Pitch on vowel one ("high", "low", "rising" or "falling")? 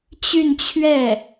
falling